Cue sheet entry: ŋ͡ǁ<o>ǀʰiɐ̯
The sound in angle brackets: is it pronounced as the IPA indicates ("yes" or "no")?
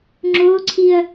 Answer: yes